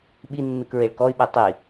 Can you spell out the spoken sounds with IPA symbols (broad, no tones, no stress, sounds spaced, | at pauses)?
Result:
ɓ i nː ɯ k ɹ e ɭ k ɔ y̯ ɓ e tˤ i